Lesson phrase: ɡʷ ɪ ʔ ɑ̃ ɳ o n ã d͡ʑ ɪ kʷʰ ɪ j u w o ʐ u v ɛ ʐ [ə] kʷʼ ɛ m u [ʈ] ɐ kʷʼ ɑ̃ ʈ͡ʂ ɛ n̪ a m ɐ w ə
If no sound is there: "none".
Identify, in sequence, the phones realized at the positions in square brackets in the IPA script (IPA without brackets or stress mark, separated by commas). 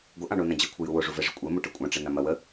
ɪ, ʈ